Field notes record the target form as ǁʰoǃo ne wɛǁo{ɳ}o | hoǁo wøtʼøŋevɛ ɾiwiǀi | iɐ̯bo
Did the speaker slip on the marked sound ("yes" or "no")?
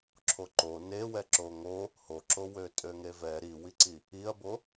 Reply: yes